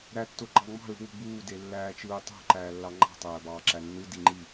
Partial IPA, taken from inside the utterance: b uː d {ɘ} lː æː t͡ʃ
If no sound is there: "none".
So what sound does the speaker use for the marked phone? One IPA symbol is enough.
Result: e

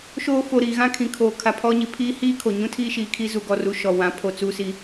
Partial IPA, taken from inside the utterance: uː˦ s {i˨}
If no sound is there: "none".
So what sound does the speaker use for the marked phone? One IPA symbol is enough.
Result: i˦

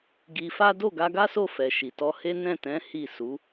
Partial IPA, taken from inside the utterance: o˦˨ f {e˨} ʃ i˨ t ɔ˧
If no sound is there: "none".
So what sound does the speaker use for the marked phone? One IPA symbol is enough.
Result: ɛ˨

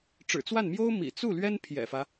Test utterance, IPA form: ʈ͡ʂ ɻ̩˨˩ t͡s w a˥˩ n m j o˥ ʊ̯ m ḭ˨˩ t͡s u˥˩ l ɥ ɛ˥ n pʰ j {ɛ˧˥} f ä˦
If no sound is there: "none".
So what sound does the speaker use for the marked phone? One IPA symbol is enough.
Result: ɛ̰˨˩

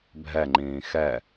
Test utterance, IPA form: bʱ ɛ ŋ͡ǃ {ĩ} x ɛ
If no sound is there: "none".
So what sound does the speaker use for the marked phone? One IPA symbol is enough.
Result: ĩː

